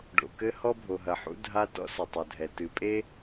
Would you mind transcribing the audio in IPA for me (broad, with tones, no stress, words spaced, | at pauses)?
ɖo̰˩kɘ˥ hɔ˥bʱo˩ɦɐ˩ħṵ˥ dʱa˥ tɔ̰˥sɘ˩tˤo˩dʱɛ˩ tɨ˩pʼe˥